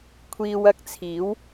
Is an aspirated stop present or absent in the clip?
present